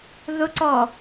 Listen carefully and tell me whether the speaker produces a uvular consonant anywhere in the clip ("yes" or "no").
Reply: no